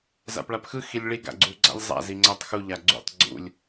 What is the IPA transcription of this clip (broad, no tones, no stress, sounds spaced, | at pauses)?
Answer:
z a̰ p ɭ a p x ɯ x i lʲ ɭ i ɡ a̰ ɡ͡ǀ u ɡ͡ǀ a̰ lʲ zˤ a̰ z i ŋ͡ǀ æ tˤ x u ʎ a ɡ͡ǀ ṵ tˤ ɡ͡ǀ ṵ lʲ